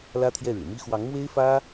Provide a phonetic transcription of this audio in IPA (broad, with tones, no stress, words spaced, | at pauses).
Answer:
lä˥t̪ʰjɛ˥˩ɻɻ̩˨˩ mi˥ xwɑ˧˥ŋ mwe˥ɪ̯fä˥